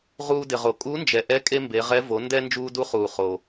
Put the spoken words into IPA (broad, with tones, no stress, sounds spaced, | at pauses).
ʁ uː˧ d ɪ˩ ʁ o˩ kʼ u˧˥ n d͡ʒ ɛ˩ ʔ ɛ˧˥ kʼ e˥ m b e˩˧ ʁ ɛ˧˥ v o˩˧ n d ɛ˧ n d͡ʒ uː˧ d u˧˥ χ uː˩ χ o˩